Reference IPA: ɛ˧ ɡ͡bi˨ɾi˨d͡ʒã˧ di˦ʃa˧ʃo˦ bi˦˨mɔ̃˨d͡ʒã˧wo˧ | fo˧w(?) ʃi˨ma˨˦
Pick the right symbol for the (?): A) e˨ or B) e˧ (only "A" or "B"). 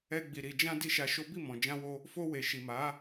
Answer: A